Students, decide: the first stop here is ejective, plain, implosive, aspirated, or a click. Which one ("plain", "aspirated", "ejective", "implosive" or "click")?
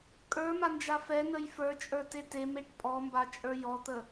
ejective